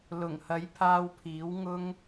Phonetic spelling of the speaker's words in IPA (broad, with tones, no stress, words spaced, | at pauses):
lʊ˨˩ŋhɐ˨˥jpʰaː˧wpʰiː˨˥w ŋʊ˥ŋ